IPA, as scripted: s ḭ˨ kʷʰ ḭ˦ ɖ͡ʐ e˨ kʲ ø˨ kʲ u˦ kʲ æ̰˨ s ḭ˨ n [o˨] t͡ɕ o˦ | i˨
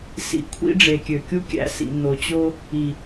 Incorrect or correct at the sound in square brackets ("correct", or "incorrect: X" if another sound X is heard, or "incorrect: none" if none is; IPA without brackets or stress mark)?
correct